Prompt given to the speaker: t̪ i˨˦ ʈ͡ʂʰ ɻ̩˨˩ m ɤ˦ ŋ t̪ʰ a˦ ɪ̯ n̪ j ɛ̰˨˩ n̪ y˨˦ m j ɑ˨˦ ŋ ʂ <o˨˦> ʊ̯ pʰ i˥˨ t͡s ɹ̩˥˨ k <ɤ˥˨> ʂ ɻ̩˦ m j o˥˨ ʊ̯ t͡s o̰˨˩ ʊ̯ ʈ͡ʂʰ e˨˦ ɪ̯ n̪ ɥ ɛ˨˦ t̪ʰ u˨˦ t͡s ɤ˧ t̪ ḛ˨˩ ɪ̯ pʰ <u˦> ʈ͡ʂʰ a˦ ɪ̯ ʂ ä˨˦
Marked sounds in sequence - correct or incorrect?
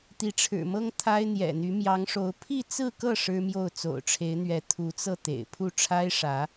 correct, correct, incorrect

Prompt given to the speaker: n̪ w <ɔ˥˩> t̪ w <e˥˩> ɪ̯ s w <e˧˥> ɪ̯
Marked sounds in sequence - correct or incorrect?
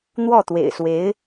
correct, incorrect, correct

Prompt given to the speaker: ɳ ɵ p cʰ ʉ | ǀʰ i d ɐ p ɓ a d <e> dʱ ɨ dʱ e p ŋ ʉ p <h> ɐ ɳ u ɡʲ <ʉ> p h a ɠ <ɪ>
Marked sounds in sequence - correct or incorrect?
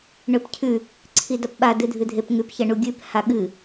incorrect, incorrect, correct, incorrect

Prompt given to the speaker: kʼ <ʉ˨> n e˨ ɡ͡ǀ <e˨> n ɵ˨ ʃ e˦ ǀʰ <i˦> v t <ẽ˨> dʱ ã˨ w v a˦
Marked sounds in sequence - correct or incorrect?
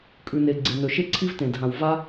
correct, correct, correct, correct

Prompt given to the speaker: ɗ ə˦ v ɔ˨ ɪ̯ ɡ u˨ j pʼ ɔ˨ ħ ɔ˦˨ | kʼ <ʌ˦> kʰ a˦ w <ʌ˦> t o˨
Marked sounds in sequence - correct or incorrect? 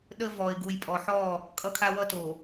correct, correct

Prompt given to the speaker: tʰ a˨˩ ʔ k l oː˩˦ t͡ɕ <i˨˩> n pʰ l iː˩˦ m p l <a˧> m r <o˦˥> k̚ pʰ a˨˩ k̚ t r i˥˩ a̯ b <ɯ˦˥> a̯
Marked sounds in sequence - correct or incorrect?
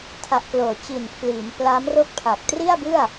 correct, incorrect, incorrect, incorrect

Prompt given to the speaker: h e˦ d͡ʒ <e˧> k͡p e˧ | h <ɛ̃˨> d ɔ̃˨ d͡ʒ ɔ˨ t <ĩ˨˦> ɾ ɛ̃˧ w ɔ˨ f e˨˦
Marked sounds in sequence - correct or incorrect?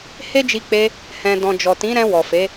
incorrect, correct, correct

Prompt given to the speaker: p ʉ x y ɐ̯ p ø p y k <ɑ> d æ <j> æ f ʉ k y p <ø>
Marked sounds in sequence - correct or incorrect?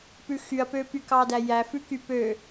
correct, correct, correct

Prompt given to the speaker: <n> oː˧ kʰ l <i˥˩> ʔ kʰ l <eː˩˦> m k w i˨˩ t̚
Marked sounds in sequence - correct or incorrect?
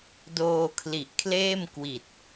incorrect, incorrect, incorrect

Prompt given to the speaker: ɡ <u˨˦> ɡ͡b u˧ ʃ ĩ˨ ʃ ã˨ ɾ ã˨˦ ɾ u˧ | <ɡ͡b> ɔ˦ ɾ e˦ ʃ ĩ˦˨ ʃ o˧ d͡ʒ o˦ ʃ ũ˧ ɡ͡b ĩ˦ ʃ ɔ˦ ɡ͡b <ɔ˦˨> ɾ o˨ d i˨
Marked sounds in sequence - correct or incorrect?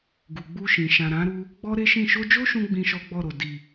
incorrect, correct, correct

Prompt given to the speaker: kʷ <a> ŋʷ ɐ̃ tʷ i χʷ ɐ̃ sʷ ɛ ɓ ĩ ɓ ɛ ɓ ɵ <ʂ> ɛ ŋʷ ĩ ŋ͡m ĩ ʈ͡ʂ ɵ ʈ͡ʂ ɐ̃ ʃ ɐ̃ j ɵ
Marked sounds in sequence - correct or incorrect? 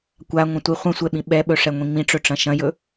correct, correct

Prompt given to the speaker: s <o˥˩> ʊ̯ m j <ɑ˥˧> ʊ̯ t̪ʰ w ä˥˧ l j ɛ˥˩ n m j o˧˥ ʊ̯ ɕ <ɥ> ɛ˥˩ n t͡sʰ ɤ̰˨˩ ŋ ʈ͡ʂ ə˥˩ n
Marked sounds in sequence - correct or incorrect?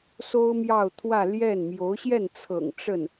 incorrect, correct, incorrect

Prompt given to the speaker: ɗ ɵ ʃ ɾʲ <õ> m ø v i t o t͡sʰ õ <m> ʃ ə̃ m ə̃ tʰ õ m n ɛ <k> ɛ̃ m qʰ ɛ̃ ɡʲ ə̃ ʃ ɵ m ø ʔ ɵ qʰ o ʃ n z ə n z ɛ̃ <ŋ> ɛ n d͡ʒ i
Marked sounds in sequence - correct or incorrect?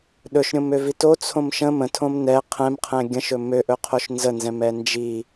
correct, correct, incorrect, incorrect

